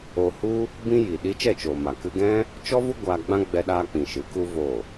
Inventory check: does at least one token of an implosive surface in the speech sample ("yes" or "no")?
yes